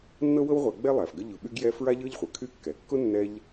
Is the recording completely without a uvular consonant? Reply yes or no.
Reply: no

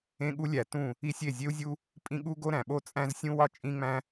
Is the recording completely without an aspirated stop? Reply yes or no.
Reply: yes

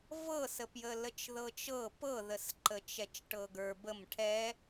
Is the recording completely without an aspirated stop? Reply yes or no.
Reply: no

